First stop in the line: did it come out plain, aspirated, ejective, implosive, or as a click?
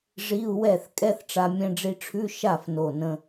ejective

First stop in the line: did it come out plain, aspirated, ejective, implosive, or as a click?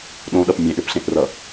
implosive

